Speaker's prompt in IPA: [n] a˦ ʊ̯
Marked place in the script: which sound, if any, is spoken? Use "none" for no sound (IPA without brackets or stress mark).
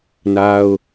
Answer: n